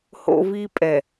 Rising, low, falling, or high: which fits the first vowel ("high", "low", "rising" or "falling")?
high